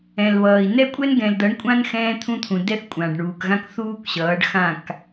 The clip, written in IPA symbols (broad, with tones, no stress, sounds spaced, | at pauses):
ɛ̃˨ l β ʌː˨ i̯ n ɛ˦ kʷʼ ɛ˦ n ɡ ɛ̃˨ l d ʌ˨˦ ɳ kʷʼ ã˦ n x ɛ̃ː˦ t̪ʰ ũ˦ t̪ʰ ũ˨ d ɛ˦ θ kʷʼ ã˨ ɖ ɳ uː˨ k ɣ ã˦ k θ uː˦ k ɕ ʌː˨˦ ɖ x ã˦˨ k